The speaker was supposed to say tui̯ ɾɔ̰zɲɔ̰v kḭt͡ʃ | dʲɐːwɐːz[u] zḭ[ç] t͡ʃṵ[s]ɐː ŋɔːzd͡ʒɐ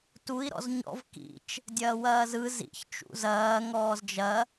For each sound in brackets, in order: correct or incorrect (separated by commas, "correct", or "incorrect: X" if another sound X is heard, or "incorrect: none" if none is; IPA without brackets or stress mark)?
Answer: incorrect: ɯ, correct, incorrect: z